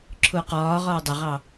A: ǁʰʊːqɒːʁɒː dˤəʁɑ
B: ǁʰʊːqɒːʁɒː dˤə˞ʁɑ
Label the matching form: A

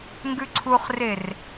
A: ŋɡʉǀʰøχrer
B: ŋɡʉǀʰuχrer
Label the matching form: B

